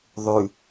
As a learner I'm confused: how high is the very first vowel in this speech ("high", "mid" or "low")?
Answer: high